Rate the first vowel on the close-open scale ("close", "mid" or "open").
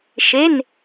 mid